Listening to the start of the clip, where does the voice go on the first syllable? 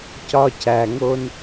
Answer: high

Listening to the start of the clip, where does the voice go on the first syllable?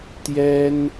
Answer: high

